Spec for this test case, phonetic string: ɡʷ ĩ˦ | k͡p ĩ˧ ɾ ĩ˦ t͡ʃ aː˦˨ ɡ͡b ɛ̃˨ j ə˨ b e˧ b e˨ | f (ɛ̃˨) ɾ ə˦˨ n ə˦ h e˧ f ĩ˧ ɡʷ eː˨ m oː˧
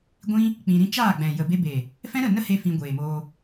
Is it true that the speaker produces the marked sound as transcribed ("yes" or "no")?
no